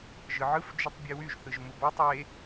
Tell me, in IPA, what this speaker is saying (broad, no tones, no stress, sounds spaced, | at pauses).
ʒ ɯ ʕ ɯ f d͡ʒ y tˤ bʲ e w y ʒ θ ɯ ʒ m u b ɑ tˤ e